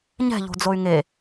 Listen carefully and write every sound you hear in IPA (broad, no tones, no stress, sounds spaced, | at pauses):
ɲ ɛ̤ ʎ o̤ d͡z o y̯ ŋ e